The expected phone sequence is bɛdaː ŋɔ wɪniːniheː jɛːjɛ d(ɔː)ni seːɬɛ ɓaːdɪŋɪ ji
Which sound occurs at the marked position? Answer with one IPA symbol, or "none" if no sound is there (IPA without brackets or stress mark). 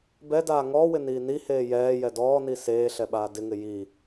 ɔː